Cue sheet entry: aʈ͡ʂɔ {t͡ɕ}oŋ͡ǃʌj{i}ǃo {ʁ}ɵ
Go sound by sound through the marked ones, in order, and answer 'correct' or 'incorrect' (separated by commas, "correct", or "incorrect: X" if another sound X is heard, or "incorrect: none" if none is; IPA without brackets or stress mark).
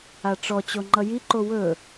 correct, correct, incorrect: w